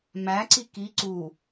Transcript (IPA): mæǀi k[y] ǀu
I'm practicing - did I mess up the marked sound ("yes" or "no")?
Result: yes